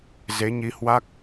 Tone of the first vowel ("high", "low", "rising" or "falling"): rising